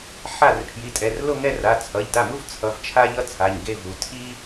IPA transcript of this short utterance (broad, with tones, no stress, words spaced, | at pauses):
ħa˥˩r pʰji˩˧˩tʼɛ˩˧˩rlo˥˧ŋɛ˥˧ ra˩˧˩t͡sʰʌ˩˧˩ʎda˥˩mu˥v t͡sʰʌ˩˧˩v t͡ʃʰa˥ʎʌ˥ t͡sʰa˩˧˩ɲɡe˥˧vu˩˧˩ tʰi˥